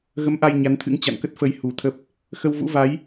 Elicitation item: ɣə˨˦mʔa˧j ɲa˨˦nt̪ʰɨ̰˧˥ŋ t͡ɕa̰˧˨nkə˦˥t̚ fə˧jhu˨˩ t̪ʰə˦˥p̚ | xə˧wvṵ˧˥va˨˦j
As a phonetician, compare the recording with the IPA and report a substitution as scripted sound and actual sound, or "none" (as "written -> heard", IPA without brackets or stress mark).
none